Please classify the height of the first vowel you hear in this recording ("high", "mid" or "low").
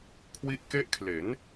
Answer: high